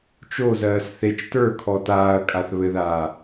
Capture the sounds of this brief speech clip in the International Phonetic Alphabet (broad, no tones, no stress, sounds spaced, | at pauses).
t͡ʃ o z ɜː s θ e t͡ʃ t ə˞ kʰ ɔ t aː ɐ̯ kʼ a θ β ɘ ð aː